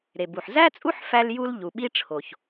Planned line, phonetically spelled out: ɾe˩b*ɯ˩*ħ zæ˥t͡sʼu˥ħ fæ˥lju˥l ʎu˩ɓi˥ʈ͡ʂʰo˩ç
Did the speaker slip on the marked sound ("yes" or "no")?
yes